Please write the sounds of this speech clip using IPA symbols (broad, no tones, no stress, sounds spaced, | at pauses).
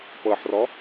p ɤ ħ r ɔ